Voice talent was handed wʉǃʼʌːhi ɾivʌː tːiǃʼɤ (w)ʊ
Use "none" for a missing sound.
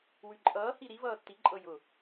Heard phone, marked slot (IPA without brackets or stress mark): j